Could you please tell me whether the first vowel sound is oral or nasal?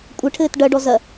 oral